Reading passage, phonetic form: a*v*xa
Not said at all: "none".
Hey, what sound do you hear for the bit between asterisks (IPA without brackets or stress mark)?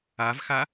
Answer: v